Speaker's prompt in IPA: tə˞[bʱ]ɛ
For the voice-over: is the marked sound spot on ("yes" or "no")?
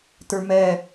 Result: no